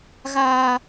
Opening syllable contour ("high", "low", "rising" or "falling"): high